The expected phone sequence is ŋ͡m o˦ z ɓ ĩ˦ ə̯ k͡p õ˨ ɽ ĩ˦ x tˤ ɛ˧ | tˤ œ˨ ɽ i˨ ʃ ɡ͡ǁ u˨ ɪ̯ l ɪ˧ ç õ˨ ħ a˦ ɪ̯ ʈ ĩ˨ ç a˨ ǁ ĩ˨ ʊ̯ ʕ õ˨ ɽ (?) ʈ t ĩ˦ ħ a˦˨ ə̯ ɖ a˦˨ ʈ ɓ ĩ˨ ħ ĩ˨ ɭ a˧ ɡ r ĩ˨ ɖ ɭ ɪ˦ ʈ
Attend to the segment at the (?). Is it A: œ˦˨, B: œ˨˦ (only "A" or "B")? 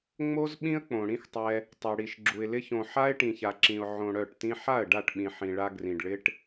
A